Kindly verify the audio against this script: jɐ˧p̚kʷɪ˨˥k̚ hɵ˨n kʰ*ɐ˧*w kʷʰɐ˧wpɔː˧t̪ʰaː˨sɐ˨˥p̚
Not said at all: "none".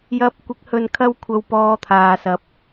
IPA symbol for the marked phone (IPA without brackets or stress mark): ɐ˧